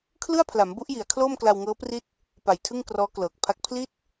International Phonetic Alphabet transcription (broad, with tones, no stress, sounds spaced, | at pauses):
kʰ l ɯ˥˩ a̯ pʰ l a˩˦ m b u˦˥ ʔ j i˩˦ a̯ kʰ l oː˥˩ m k l a˧ w ŋ ɤː˦˥ p r i˦˥ t̚ | p a˨˩ j tʰ ɯ˥˩ ŋ k r ɔː˦˥ k l ɤː˨˩ k̚ pʰ a˦˥ k̚ pʰ l i˥˩ t̚